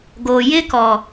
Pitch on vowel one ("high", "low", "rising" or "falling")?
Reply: low